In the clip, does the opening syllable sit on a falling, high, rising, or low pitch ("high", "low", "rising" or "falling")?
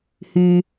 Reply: low